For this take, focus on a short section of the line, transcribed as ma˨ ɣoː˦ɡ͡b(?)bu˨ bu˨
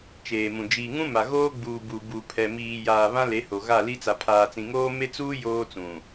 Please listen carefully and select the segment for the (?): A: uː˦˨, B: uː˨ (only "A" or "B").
B